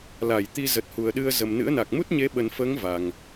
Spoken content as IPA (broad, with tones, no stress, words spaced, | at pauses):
la˧˩j t̪i˧zə˨˩t̚hu˨˩ə̯ɗɨ˧ə̯ zə˨˩mnɨ̰˧˥ə̯na˨˩k̚ mu˦˥t̚ɲe˨˦ɓə˨˩nfəː˨˦ŋ va˨˩ŋ